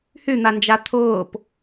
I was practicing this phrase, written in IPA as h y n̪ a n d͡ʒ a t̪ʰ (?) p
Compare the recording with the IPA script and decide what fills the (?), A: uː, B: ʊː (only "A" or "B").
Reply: B